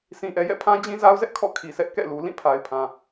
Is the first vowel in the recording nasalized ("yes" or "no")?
yes